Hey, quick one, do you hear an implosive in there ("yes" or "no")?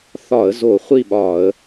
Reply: yes